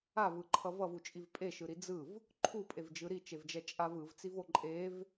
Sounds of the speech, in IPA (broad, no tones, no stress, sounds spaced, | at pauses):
a v ɯ ǃʰ ʌ v ʌ v u t͡ʃʼ i v pʼ e ʃ ɯ ɾ i d͡z ɯ v | ǃʰ u pʼ e v d͡ʒ ɯ ɾ i t͡ʃ e v d͡ʒ ɛ t͡ʃʼ a v ɯ v t͡s i v o ǃʼ e v